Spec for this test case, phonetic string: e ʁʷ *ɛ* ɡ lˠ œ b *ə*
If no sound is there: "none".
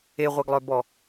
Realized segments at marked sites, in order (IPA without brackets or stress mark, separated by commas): ɛ, ɔ